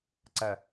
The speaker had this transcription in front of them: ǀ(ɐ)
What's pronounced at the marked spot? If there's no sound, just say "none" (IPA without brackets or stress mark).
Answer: ɐ